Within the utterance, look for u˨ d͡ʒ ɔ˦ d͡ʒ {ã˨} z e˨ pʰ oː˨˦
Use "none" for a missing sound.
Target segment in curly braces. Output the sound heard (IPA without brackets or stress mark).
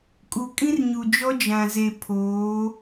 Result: ã˨